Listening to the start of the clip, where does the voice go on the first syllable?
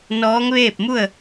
rising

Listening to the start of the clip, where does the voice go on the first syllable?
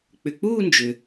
low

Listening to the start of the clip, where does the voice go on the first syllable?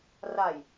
low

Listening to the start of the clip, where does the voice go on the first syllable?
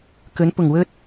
rising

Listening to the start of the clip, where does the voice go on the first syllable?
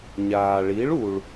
low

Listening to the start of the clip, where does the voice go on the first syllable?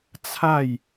falling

